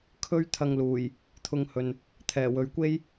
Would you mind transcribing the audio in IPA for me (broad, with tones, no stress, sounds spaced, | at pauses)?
kʰ ɵ˥ ɥ t̪ʰ ɐ˧ ŋ l uː˨˩ j | t̪ʰ ʊ˧ ŋ h ɵ˨ n | t̪ʰ ɛː˨˩ w ɵ˨ ɥ kʷ e˥ j